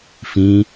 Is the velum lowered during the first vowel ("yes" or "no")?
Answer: yes